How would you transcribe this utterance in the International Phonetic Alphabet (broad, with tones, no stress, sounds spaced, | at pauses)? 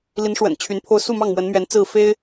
l i˧˥ n ʂ w ə̰˨˩ n t͡ɕʰ y˧˥ n pʰ o˥ ʊ̯ s u˥˧ m ɑ˥˩ ŋ m w ə˧˥ n m ɥ ɛ˧˥ n t͡s ɹ̩˥˩ f e˥ ɪ̯